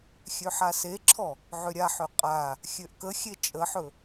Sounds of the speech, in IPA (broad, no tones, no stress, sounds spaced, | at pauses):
xʲ ø ħ a s e ǁʰ ɔ | ʕ ø ɾʲ a ħ ø qʼ a | xʲ ø ʔ k ə xʲ e t͡ʃʼ ə ħ ɵ